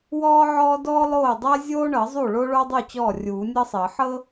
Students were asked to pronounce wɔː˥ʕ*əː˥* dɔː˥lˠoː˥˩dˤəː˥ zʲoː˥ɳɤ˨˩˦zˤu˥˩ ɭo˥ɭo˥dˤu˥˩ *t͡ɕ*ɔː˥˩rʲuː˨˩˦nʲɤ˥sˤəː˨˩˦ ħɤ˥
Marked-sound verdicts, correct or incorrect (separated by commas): incorrect, correct